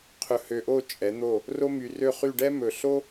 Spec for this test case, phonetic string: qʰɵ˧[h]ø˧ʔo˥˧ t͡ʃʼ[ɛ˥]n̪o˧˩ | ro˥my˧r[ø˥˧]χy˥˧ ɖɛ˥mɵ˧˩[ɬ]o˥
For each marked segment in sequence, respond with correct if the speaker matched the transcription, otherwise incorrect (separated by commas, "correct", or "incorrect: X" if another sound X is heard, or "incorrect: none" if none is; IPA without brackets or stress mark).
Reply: correct, incorrect: ɛ˩˧, correct, correct